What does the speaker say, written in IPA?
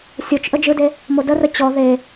sʲ o t͡ʃ ʔ ə d͡ʒ ɯ d e | m o d ə r ə t͡ɕ ɔ ð e

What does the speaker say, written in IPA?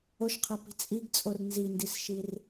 o ʃ qʰ a p i̤ t͡sʼ i ɡ t͡sʼ o r n z i n d i s ʃ i r

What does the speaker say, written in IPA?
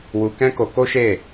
w u˧ k ɛ̃˦ k o˧ k o˦ ʃ e˦˨

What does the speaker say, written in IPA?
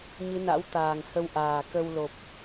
ɲ ɨ˨˦ n a̰˧˥ w t̪ aː˨˩ ŋ h ə˧ w ʔ aː˨˩ k ə˧ w l o˨˩ p̚

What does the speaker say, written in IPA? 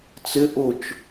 t͡s ɪ ʔ ʊ t͡ʃ

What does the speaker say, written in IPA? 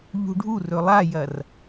ʎ ṳ ɖʱ u r ɵ lˠ a j ɐ r

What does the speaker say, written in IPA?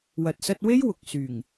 w ɐ˨ t̚ s ɐ˧ t̚ w e˥ j w ʊ˨ k̚ s yː˨˩ ŋ

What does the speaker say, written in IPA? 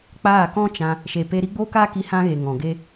k͡p aː˦˨ k ɔ̃˦ t͡ʃ ã˧ | ʃ e˨ p e˧ ɾ i˦ ɡ͡b oː˦ k aː˦ k i˧ h ã˦ ɣ e˨ ŋ ɔ̃˨ ɡ e˦

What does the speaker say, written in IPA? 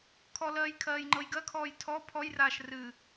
kʰ ɔ l ɜː j kʰ ɜː j ŋ͡ǃ ɤ j ɡ ɜ kʰ ɔː j tʰ ɔ pʰ ɔ j r aː ʃ r ɨː

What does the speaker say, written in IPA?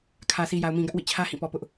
kʰ ä˨ sʰ i˨ j a˨ ʊ̯ m ĩ˨ ɡ ä˦ ʔ w ḭ˦˨ t͡ɕʰ ä˦ h ĩ˦˨ p ɔ˨ p ʊ˦ ʔ

